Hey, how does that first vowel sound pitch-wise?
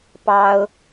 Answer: high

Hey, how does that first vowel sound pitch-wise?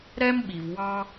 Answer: high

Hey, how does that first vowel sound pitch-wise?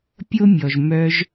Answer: high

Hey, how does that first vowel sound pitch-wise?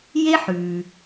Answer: high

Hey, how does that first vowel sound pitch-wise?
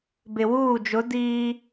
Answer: low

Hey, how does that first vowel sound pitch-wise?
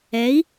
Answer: rising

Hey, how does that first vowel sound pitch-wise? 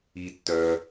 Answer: low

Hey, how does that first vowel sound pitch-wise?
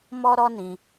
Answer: high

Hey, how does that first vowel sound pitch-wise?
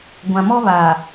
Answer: low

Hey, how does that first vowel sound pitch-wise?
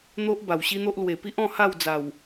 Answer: high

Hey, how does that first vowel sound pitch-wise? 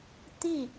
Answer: falling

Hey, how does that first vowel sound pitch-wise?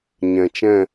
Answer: low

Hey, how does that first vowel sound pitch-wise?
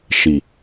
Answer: low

